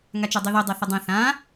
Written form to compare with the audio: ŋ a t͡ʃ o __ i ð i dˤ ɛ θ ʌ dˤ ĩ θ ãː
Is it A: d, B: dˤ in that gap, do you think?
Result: B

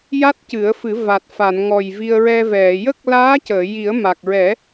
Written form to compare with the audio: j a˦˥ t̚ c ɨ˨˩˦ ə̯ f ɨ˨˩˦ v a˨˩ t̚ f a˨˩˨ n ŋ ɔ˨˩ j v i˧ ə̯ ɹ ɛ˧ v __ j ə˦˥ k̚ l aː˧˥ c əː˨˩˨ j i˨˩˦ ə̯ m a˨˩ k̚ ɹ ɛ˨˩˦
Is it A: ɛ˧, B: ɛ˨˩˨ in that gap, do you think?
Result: B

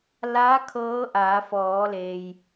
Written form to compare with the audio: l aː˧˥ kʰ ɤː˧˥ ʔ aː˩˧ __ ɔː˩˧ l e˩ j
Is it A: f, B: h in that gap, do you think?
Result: A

